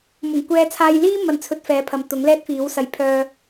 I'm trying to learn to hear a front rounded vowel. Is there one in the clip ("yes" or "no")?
yes